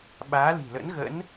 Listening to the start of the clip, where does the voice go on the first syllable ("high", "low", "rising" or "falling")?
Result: rising